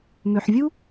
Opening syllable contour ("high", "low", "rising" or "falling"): low